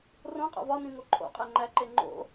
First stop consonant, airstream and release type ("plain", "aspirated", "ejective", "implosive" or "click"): ejective